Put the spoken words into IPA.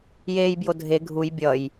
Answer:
j eː j b j o dʱ e ɡʱ u j bʲ ʌ j

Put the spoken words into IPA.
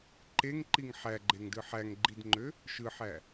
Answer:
ǃ e ŋ ǃ i ŋ ħ æ ɡ͡ǃ e ŋ d ɯ ħ æ ŋ ɡ͡ǃ i d ŋ͡ǃ ø | ʃ ɯ ħ æ

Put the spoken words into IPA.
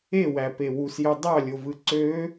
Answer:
e w æ p e w u s j ø dˤ ɑ lʲ o v ɯ ǀ ø

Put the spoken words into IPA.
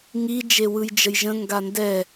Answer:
ŋ i d͡ʒ e w ɯ j d͡ʒ ə j ʒ ə̃ ŋ ɡ a n d ɛ

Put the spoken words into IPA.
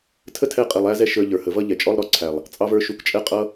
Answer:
tʰ ə˦ tʰ ɛ˧ qʼ i˨ lˠ æ˦ z ɛ˦ ʃ ə˞˧ ʎ ə˞˨ h ə˨ v ʌ˦ ʎ ɛ˨ t͡ʃʼ ɔ˦ lˠ ɾ ɔ˧ ǀʰ æ˨ lˠ | t͡sʼ ɑ˧ v ə˞˧ ʃ u˨ k t͡ʃʼ ɛ˧ qʼ ʌ˧

